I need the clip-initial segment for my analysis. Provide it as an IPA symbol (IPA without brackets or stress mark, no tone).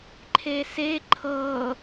ǃʰ